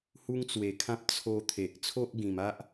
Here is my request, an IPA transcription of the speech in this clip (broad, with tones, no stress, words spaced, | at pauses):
hu˦ŋt͡swe˨˩kʰã˦p̚ t͡sʰo˧ t̪ʰe˨ʔ t͡sʰo˦ʔɡĩ˨˩ma˦ʔ